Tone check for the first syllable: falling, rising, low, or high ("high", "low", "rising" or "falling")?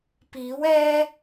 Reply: rising